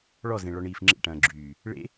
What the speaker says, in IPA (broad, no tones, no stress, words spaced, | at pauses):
ɭɔzẽ ɭɔɳiːfŋ͡ǁḛʈɐ̃ː ɡ͡ǁyː | ɭḛ